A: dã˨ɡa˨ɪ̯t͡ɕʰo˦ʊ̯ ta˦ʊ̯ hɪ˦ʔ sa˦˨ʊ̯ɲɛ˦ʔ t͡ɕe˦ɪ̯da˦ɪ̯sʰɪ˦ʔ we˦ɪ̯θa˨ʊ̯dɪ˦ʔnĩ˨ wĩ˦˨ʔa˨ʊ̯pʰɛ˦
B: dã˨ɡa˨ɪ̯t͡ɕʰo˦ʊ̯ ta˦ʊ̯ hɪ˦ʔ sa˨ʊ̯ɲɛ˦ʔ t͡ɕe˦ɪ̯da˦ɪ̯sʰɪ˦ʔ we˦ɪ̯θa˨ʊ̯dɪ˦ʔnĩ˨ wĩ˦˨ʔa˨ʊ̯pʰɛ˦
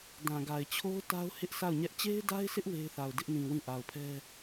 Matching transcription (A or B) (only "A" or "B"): A